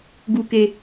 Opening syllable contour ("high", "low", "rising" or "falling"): high